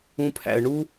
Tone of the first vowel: low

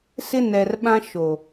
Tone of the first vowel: high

